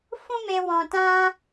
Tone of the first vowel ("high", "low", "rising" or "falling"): high